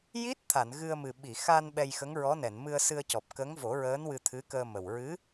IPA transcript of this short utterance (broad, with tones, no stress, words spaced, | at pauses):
ji˦˥t̚ t̪ʰa˨˩˨nɣɨ˧ə̯mɨ˨˩ ɓi˨˩˨xa˧n ɓɛ˧jxə˧˥ŋɹɔ˧˥nɛ˨˩˨n mɨ˧ə̯sɨ˧ə̯cɔ˨˩p̚ kə˧˥ŋvo˨˩˦ɹəː˧˥n wɨ˧t̪ʰɨ˧˥kəː˧mə˨˩w ɹɨ˧˥